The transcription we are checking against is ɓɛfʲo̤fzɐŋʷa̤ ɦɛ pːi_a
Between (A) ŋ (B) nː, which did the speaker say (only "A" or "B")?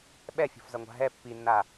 B